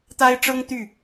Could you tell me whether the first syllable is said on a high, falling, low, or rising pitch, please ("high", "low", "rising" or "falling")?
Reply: high